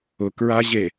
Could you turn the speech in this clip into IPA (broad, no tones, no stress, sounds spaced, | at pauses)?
ʊ k ɹ a ʑ e